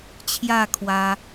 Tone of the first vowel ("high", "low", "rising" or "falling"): falling